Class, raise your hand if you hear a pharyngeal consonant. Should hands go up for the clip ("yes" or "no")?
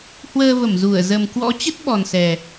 no